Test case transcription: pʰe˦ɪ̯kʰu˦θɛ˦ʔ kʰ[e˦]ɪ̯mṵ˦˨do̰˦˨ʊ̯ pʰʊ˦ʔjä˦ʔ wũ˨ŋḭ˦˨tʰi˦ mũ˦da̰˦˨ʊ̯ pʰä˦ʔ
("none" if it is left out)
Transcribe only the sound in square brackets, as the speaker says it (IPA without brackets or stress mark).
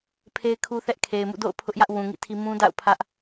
e˨